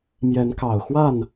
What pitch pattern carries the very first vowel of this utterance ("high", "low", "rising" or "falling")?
rising